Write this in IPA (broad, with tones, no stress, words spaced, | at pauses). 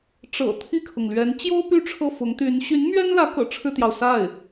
ʈ͡ʂɤ̰˨˩ t̪ʰi˥˩kʰʊ˩ŋlɥɛ˧˥n t͡ɕjo˥ʊ̯ py˥ʈ͡ʂʰɤ˥˩ fʊ˧˥ŋt̪y˧˥n ɕy˧˥nmɥɛ˥nlä˧˥ kɤ̰˨˩ʈ͡ʂʰɻ̩˥˩t̪jɑ˩ʊ̯ sa˥˩ɪ̯